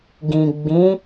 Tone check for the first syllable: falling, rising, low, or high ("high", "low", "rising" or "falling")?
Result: low